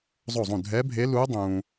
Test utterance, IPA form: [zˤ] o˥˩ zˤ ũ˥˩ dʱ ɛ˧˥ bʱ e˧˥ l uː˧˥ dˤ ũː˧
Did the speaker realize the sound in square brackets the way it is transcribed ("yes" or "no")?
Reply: yes